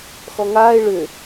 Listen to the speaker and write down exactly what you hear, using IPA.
x ɔ ŋ aː ɪ̯ ɭ ʏ

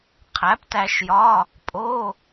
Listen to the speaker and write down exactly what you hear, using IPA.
qʰ æ˩˥ p t æ˧ ʃ j ɒ˧˥˧ | pʼ o˧˥˧

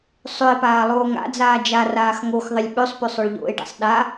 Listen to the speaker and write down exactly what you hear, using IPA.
sˤ ø e̯ p aː lˠ oː ŋ a̰ d͡z aː d͡ʒ a r aː x ŋ o x ðˤ ɪ lʲ ɓ ø sˤ p ø sˤ ø ɭ ʎ o̰ e̯ ɖ a̰ sˤ ɗ a

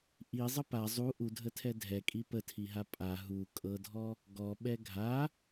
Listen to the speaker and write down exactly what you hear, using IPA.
ʔ i zˤ ə p a zˤ u ʔ u dʱ ə tʰ ɛ dʱ ɛ kʼ i p ə tʰ i ɦ a pʼ a ɦ u kʼ ɤ dʱ ɔ | ɡ ɔ ɓ ɛ ɡʱ a

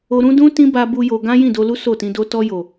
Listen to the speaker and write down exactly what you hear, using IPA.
o˧ ɾ ũ˦ d ũ˦ t ĩ˦ b a˧ b u˦ j o˧ ɡ ã˦ j ĩ˦˨ d o˧ l u˦ s o˦˨ t ĩ˧ d o˦ t ɔ˧ j o˨

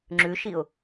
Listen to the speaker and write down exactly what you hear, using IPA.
ŋ͡ǁ ʉ ʃ i ʊ̯

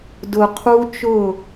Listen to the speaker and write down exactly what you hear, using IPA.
d ʊ˨ qʰ u˦ t͡ʃ ʊ˦˨

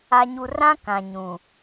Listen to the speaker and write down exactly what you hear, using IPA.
a˨ ɲ u˨ r ã˦ k ã˨ ɲ ũ˨

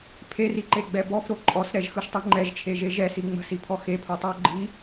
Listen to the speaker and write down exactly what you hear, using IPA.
pʰ e r i ǃ e ɡ͡b ɛ b ɔ f ɾ o ǃʼ ɔ s ɾ ɛ ʒ x ɯ ʃ tˤ i ŋ͡ǃ ɛ ʒ t͡ʃʰ e ʒ e ʒ ɛ s i ŋ͡m ə̤ s i pʰ ɔ x e pʰ o tˤ ɯ o̯ ɡ͡ǃ i

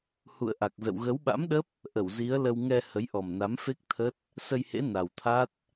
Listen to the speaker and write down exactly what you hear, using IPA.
h ṵ˧˨ ə̯ ʔ a˨˩ k̚ z ə̰˧˨ w ɣ ə˨˦ w ɓ a̰˧˥ m ɗ ə˦˥ p̚ | ʔ ə˧˩ w z i˨˦ ə̯ l ə˧ w ŋ ɛ˧ h ə˨˦ j ʔ ɔ˨˩ m n a˨˦ m f e˦˥ k̚ t̪ʰ ə˦˥ t̚ | s ə˧ j h ḛ˧˥ n a˨˩ w t̪ʰ a˦˥ t̚

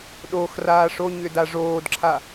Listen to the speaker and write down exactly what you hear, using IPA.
ɗ o x r aː ʂ o ɲ ʏ d a ʐ oː d ǁʰ a

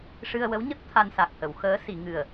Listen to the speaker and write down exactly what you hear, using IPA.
ʂ ɨ˧ ə̯ w ə˧˥ w ɲ ə˦˥ k̚ t̪ʰ a˧ n s a˨˩ k̚ h ə˨˩˨ w x əː˧˥ s i˨˩˨ ŋ ɨ˨˩ ə̯

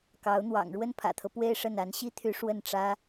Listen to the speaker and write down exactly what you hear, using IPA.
k ɑ˧˥ ʊ̯ n̪ w ɑ̰˨˩ ŋ ɻ w ə˥˩ n pʰ ä̰˨˩ t̪ʰ ɤ˦ p w e˥˧ ɪ̯ ʂ ə˥˩ n a˧˥ n ɕ i˥ t̪ʰ y˧˥ ʂ w ə˥˩ n ʈ͡ʂ ä˥

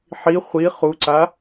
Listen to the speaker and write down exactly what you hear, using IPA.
ħ i χʷ i χ u ǀ a

